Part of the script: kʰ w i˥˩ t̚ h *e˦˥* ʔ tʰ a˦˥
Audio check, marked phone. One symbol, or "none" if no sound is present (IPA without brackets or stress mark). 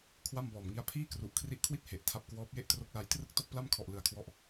e˨˩